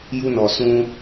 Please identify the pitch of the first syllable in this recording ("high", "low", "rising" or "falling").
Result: high